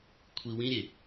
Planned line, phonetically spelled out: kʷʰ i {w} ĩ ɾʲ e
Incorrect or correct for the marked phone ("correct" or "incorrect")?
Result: correct